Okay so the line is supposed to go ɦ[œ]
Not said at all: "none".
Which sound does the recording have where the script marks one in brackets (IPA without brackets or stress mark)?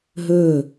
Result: ɵ